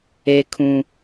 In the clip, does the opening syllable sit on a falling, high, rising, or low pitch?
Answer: high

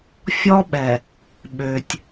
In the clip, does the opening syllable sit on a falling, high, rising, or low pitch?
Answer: high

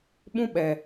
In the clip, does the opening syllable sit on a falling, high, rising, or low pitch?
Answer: high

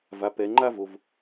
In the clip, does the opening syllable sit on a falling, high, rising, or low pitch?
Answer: low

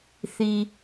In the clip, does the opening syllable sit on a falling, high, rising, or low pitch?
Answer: low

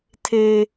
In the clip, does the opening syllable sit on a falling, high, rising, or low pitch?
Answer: high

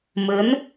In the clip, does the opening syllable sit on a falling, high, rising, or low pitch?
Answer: rising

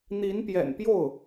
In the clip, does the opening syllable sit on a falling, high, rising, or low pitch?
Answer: rising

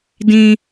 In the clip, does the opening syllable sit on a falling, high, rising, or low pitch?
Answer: high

